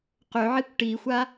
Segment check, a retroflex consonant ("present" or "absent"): present